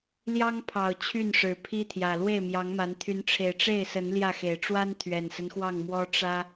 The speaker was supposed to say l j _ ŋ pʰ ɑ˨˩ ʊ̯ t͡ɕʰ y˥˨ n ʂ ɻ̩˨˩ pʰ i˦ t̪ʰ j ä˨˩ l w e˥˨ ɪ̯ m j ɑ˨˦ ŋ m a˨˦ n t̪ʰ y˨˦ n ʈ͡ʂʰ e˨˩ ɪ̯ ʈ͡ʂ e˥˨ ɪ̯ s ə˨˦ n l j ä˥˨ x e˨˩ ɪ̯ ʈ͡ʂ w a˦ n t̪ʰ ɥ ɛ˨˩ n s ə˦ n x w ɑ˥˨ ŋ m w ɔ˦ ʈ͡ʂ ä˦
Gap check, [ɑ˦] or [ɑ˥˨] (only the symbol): ɑ˦